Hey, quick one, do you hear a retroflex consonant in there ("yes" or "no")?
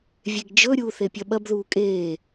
no